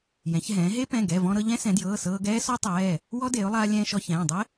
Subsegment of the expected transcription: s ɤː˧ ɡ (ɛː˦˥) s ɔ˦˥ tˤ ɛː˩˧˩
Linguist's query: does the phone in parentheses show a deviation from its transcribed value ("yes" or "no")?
no